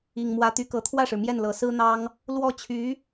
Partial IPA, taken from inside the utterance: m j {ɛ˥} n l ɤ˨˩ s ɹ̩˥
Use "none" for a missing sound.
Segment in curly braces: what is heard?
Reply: ɛ˥˩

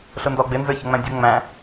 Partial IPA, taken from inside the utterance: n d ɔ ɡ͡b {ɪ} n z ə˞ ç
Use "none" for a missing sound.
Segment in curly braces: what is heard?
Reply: ɪ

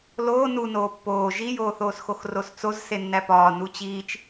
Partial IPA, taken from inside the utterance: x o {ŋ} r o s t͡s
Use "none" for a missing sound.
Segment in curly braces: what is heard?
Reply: x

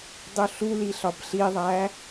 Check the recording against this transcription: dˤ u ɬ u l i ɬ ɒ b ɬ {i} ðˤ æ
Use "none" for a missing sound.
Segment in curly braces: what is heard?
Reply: i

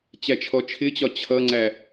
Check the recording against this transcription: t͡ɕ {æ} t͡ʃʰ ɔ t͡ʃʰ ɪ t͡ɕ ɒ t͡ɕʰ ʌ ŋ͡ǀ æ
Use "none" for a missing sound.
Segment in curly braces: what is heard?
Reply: æ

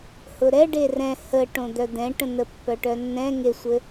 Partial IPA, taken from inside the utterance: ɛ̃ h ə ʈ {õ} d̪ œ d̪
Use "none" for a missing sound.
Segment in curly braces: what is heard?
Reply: õ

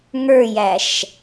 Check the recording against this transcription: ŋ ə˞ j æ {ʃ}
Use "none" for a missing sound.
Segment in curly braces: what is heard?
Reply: ʃ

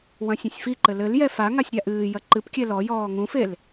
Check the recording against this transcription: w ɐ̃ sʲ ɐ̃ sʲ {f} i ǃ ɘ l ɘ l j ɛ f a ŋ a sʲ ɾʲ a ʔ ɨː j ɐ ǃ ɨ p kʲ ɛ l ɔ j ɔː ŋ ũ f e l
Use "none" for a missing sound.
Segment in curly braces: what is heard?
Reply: f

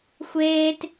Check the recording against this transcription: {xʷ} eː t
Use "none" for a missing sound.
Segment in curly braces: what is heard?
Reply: xʷ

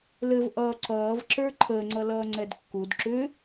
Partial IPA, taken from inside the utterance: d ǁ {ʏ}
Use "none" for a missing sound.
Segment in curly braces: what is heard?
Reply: ʏ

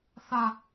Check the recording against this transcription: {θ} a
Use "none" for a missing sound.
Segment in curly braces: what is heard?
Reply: θ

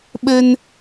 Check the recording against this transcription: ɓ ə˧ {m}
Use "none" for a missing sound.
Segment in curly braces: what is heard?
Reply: n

